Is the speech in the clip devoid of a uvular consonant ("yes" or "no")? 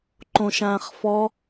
no